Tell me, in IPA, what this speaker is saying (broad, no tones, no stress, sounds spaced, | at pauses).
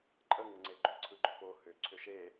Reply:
ǃʼ ə ŋ ə ŋ͡ǀ e ɡ͡ǃ ʏ ǀʰ ɯ ɡ͡ǃ ʏ p o h ʏ ǀʰ ʏ ʃ e